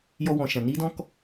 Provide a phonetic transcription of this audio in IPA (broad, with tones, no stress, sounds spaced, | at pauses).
j ɔ˧ w ɔ̃˨ ʃ ã˨ n i˦ d ɔ̃˦ k